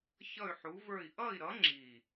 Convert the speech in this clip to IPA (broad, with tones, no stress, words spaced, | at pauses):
çʌ˥˧y̯ħu˧˥və˞˥˧i̯ ʔʌ˥˧i̯ɾʌ˧˥ ŋ͡ǁi˥˧